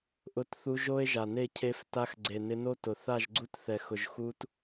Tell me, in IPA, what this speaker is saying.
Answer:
ʔ ʊ˧ t θ u˧ ʒ o˦ e̯ ʒ a˨ n e˦˨ cʰ e˧ f t a˧ x ɡ͡ǀ e˨ n ɪ˧ n o˦ t ʊ˨ θ a˦˨ ʒ ɡ͡ǀ u˦ t θ ɛ˨ x ʊ˨ ʒ x u˧ t

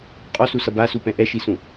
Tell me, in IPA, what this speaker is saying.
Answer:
qʼ ɔ s u s ʌ b a s u p ɛ̃ ʔ ɛ ʃ i s ũ

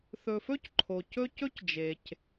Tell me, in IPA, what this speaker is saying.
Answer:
θ ɵ˨ f ɵ˥ c ǃʰ o˩ c ɵ˦ c ɵ˥ c d͡ʒ e˩ c

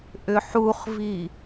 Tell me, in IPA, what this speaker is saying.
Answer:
ʔ ʏ ħ u χ v i

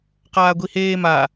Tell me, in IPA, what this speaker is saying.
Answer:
q aː ɡʷ i h eː m a

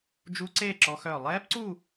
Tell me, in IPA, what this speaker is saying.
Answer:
d͡ʒ u˦˥ ǀ eː˥˧ ǁ ɔ˦˥ x œː˥˧ lˠ ɛː˦˥ p ǀ u˥˧

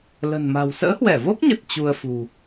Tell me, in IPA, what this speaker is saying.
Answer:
l ə̤˨˩ n m a̤˨˩ w s ə̰ː˧˥ h w ɛ˧˩ v o˦˥ k̚ ɲ ə˨˩ t̚ t͡ɕ u˧ ə̯ f ṳ˨˩

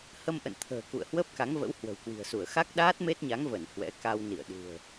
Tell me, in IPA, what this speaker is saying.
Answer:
h ə˧ m ʔ ə̰˧˨ n t̪ʰ ə̤ː˨˩ k ṵ˧˨ ə̯ h w əː˦˥ p̚ k a˨˦ ŋ v ə̰˧˥ w h w ə̤˨˩ w k w i̤˨˩ ə̯ s u˧˩ ə̯ x a˦˥ k̚ ɗ aː˦˥ t̚ m e˦˥ t̚ ɲ a˨˦ ŋ v ə˧˩ n h w ɛ̰˧˥ k a˧ w n ḭ˧˨ ə̯ ɗ ṳ˨˩ ə̯

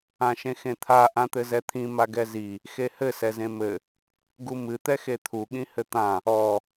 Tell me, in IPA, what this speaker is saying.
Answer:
ã ʃ ẽ x ẽ t̪ʰ a ʔ ã t̪ ɘ z ɛ t̪ʰ ĩ m a ɡ ɛ z i | x e h ɘ s ɛ z ẽ m ɘ | ɡ u m ɨ t̪ ɛ x e t̪ʰ u ɠ ĩ h ɘ t̪ ã | ɔ

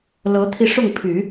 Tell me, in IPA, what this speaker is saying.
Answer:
l ɤ˧˥ t̪ʰ i˧ ʂ ʊ˥˩ ŋ pʰ y˨˩˦

